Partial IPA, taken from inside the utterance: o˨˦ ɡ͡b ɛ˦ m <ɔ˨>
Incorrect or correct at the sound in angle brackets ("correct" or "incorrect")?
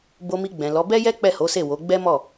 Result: incorrect